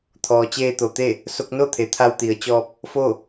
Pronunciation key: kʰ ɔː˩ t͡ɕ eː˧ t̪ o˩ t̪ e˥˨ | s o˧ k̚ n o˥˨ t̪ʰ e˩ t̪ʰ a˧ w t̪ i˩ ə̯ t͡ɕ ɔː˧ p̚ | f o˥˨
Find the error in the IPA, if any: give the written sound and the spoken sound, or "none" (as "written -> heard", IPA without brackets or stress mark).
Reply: kʰ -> t̪ʰ